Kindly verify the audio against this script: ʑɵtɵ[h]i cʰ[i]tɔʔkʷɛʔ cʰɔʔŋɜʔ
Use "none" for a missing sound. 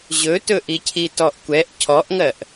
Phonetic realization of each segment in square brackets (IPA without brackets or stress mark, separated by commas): ʔ, i